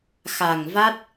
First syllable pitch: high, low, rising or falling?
low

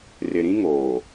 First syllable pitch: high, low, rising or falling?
low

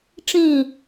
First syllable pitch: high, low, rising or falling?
falling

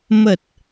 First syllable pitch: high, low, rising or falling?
low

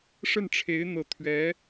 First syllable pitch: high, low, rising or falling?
falling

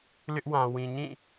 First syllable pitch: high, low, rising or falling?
high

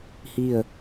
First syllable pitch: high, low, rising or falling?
falling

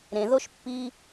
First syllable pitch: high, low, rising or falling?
low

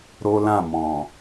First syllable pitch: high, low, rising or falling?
high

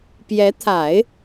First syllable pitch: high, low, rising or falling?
rising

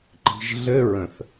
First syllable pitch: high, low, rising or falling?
low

